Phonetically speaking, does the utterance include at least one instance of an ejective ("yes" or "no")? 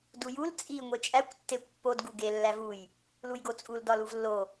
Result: yes